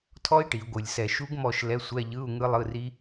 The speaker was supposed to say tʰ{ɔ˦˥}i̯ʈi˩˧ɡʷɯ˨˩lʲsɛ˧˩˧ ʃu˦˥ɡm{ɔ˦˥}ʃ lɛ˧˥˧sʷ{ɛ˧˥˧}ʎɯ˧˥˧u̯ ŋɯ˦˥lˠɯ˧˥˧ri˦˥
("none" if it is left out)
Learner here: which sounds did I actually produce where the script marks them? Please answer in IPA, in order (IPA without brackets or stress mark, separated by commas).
ɔ˦˥, ɔ˦˨, ɛ˧˥˧